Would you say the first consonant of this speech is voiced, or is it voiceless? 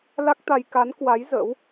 voiced